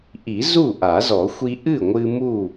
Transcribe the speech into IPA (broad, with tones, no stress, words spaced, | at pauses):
ʔi˨˩˦ zu˥˩ʔa˨˩˦zɔ˨˩˦ xʷi˧ʔɨ˥˩ŋʷɨ˧ mu˥˩